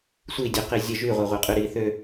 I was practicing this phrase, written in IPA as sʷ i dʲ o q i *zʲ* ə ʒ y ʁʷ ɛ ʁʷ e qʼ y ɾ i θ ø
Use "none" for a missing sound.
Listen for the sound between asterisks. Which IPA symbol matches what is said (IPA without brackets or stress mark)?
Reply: zʲ